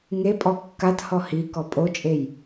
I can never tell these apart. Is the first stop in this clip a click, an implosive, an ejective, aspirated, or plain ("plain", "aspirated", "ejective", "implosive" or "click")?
ejective